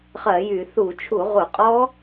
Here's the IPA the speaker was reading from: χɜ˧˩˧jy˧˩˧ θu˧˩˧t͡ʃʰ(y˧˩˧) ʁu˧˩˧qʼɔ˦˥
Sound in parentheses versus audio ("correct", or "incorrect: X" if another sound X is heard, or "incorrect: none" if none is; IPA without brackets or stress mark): incorrect: u˧˩˧